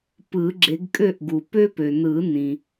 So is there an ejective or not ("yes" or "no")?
yes